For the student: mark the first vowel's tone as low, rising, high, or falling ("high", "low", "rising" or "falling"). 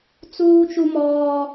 high